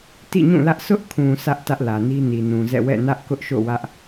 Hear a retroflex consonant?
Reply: no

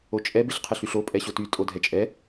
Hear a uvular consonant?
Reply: yes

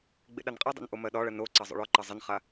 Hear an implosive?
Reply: yes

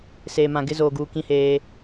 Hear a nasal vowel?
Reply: yes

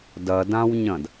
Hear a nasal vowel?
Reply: yes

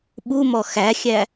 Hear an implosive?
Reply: yes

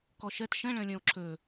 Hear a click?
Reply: yes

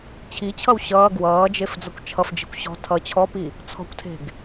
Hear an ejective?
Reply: no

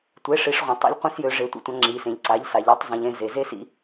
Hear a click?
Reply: yes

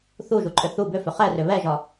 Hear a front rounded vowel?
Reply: yes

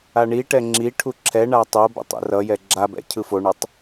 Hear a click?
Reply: yes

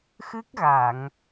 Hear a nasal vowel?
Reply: no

